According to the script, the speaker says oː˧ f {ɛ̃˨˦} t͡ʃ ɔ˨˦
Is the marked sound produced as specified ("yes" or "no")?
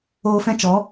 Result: no